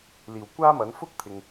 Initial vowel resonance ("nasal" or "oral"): oral